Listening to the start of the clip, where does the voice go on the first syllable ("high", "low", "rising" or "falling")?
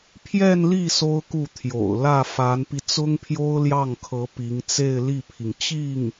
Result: falling